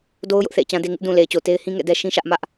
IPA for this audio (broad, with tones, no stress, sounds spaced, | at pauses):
d o˦ ʊ̯ j ʊ˦ ʔ θ ḛ˦˨ ɪ̯ t͡ɕ ã˦ d e˦ ŋ ɪ˦ ʔ d ũ˨ l e˨ ɪ̯ t͡ɕ o˨ t e˦ ɪ̯ h ĩ˦ ŋ ɛ̰˦˨ d ɛ˦ ʃ ĩ˦ ʃ ä˦ ʔ m ä˦ ʔ